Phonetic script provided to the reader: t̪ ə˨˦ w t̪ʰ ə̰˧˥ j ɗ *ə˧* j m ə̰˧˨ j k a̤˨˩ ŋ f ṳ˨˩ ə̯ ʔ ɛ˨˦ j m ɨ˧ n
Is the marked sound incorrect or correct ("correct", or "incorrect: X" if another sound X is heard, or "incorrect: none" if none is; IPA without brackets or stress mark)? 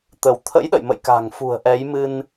incorrect: ə̰˧˨